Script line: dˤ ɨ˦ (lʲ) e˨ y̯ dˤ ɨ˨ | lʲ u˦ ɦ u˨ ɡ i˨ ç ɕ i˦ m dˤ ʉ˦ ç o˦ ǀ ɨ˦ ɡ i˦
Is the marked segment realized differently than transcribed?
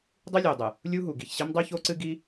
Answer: no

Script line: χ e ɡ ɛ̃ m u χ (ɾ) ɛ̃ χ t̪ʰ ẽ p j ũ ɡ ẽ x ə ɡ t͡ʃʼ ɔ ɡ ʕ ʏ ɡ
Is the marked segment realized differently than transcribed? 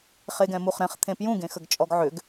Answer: no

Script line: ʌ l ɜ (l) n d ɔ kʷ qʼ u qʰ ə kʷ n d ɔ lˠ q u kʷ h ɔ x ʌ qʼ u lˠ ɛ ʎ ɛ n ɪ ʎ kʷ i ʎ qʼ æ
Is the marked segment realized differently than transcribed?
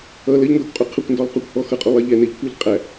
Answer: yes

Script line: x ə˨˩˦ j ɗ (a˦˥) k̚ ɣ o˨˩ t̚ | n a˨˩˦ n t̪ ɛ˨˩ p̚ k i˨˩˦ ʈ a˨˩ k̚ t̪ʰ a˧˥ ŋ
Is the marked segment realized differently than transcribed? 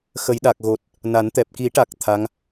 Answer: yes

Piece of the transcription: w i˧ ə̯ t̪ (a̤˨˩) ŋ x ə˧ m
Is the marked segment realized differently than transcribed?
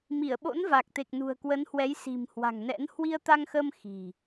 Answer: yes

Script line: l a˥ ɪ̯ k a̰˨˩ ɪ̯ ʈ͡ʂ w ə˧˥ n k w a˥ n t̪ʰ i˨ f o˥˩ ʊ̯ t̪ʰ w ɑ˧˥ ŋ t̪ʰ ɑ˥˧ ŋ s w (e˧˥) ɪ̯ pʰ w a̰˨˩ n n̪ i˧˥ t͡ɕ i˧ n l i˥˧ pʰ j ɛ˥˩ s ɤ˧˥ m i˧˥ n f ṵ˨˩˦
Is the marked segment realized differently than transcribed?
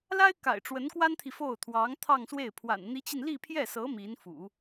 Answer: yes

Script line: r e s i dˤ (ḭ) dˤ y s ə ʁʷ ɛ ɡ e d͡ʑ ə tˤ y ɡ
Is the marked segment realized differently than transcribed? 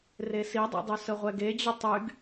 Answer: no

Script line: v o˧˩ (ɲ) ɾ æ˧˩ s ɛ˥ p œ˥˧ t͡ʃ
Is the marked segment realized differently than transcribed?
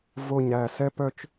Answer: no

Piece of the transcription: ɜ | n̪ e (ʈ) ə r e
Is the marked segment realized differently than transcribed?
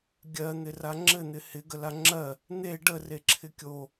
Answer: yes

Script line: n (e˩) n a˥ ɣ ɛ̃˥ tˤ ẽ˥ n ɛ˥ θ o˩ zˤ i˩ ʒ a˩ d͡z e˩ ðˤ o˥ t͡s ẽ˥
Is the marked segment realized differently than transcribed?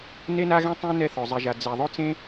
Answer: yes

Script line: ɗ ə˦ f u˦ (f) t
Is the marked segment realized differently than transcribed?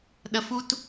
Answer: yes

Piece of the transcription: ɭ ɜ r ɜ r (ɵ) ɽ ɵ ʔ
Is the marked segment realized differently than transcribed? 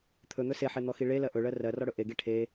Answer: yes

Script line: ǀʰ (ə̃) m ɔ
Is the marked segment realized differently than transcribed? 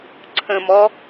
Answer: no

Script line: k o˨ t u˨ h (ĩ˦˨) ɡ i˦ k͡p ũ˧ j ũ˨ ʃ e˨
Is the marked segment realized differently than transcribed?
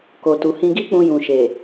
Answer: yes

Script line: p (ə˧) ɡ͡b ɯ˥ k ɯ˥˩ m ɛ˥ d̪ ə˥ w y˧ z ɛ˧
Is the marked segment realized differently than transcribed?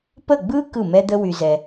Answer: yes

